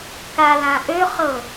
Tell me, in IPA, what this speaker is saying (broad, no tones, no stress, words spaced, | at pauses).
kalãʔøχɤ